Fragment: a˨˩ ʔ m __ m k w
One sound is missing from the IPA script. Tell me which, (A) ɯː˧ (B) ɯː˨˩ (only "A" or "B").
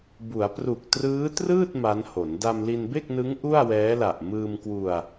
A